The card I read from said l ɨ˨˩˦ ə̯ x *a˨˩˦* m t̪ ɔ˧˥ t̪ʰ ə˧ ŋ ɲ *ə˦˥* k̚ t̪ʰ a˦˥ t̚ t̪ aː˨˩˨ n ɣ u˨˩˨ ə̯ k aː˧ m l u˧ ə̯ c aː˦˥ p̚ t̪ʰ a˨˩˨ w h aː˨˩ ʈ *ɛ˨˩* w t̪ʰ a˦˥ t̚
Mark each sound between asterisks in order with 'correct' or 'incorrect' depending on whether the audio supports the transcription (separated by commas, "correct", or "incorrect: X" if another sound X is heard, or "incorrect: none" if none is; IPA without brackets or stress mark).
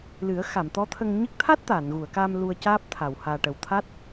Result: incorrect: a˨˩˨, incorrect: ɨ˦˥, incorrect: ə˨˩